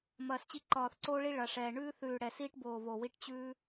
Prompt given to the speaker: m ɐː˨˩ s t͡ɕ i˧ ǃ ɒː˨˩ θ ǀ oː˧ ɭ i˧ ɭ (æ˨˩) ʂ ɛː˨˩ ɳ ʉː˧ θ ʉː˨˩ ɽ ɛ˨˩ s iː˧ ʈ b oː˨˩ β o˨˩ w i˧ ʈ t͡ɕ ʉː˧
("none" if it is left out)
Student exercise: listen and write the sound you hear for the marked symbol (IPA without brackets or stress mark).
ɐ˨˩